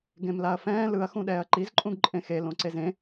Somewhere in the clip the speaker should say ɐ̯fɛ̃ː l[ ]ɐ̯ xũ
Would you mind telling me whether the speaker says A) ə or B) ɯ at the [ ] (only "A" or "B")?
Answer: B